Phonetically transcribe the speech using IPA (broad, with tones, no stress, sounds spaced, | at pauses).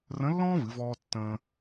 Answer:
r ə̃˧˥ lː ɔ̃ː˥ v ɨ˩˧ v ɔː˧ tː ə̃ː˧